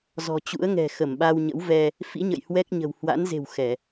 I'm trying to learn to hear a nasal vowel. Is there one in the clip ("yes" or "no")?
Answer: no